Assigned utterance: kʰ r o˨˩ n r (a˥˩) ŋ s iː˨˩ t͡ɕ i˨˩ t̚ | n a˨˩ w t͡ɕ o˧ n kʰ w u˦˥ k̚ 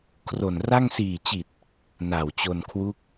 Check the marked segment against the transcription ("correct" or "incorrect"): correct